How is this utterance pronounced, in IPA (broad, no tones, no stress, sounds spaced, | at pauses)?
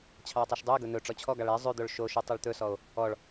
t͡ɕʰ ɑ o̯ tˤ y ʃ dˤ u e̯ ɡ ɵ n̪ ɵ ʈ͡ʂ ɔ t͡ɕʰ ɔ ɡ ɑ ɭ ɛ zˤ ʉ d̪ o ɭ ʃ o ʃ y tˤ e ɭ t̪ ɵ s ɔ o̯ | ɔ ɭ